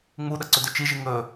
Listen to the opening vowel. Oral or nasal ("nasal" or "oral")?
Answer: oral